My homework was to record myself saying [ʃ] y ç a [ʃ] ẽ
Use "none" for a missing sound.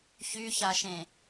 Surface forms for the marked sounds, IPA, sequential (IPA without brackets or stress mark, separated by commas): ç, ʃ